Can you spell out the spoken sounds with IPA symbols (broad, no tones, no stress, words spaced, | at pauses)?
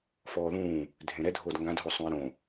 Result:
fɔːðũː | dʱẽɾɛ dʱoːdŋɡãdɦo sˤũɪ̯ɾõ